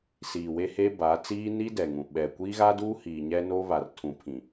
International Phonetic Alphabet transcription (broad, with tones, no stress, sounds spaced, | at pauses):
s iː˨ w e˦ h e˦ b a˨˦ t͡s iː˦ n i˦ d ɛ˨ ŋ ũ˨ ɓ ɛ˨ kʷ iː˦ ɣ a˦ d uː˦ h iː˨ ɲ ɛ˦ n o˦ β a˨ r tʰ ũ˨ pʰ ĩ˨